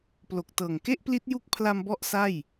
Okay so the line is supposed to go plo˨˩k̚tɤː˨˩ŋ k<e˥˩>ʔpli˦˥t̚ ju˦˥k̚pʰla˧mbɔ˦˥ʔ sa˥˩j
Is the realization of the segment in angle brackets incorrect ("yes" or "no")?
no